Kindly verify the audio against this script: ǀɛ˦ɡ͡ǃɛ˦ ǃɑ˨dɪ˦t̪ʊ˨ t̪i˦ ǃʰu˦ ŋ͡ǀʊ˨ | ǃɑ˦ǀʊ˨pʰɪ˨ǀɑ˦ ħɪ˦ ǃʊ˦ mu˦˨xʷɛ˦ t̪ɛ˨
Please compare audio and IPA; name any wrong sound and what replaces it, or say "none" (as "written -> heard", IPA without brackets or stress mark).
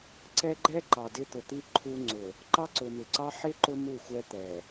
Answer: pʰ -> m